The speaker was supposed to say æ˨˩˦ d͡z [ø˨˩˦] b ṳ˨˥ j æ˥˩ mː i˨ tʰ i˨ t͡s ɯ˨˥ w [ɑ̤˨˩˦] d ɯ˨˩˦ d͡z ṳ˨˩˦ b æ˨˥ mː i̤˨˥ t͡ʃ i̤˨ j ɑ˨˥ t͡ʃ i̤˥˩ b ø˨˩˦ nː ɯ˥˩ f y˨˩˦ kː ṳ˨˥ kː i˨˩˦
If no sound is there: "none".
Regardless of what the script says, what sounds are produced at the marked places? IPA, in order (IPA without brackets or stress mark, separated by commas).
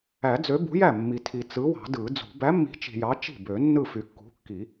ø˨˥, ɑ̤˨˩˦